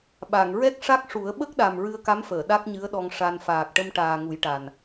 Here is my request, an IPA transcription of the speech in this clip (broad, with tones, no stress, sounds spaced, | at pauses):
ɓ a˨˩˨ ŋ ɹ ɛ˦˥ k̚ ʂ a˦˥ k̚ ʂ u˨˩˦ ə̯ ɓ ə˦˥ k̚ ɗ a˨˩ m ɹ ɨ˧ ə̯ k a˧˥ m f əː˨˩˨ ɗ a˦˥ k̚ ɲ ɨ˧˥ ə̯ ɗ ɔ˧ ŋ ʂ a˧ n f aː˨˩ k̚ ʈ ə˧ m ʈ aː˨˩ ŋ u˨˩˦ j ʈ a˨˩ n